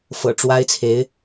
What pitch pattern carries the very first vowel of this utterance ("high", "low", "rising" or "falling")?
low